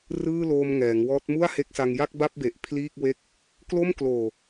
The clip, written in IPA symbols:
r ɯː˥˩ l oː˧ m ŋ ɛː˩˦ ŋ w ɔː˦˥ t̚ m u˥˩ a̯ h e˦˥ k̚ s a˧ ŋ j a˥˩ k̚ b a˥˩ p̚ b e˨˩ ʔ pʰ l iː˥˩ k̚ w e˥˩ k̚ | k l o˥˩ m k l oː˨˩

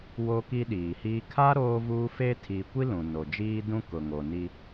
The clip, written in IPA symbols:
w o˦ k i˦ ɗ iː˨ h iː˦ kʰ a˦ ɾ oː˦ v uː˦ f e˦ tʰ i˨ kʷ i˦ l ũ˨ n o˨ d͡ʒ iː˦ d ũ˦ k ʊ˨ ŋ o˨ n i˦

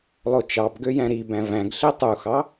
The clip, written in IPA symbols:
lˠ o t͡ʃ ɑ b ɡ ø j æ̃ ɾ i b æ̃ v æ̃ ɡ ɬ i tˤ u x ɑ

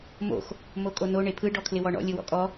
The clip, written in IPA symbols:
m o̰ x | m o kʼ o n o ɳ e pʰ ɯ ɖ ɔ kʰ l ɪ w ɔ ɳ ɔ̰ lʲ ɯ w ɔ̰ kʼ ɔ

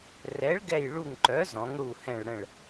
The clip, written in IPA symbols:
r ɛ˩˥ ɭ ɡ ɛ˧˩ j ɭ u˧˩ ŋ ǃ œ˩˥ z ɔ̃˩˥ ŋ ɽ u˧˩ h ɛ̃˧˩ ɭ ɽ ə̃˧˩ ɭ

